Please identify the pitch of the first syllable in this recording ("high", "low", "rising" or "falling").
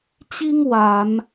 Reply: high